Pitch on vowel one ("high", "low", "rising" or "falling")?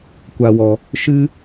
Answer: low